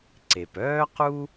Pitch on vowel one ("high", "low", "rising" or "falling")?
low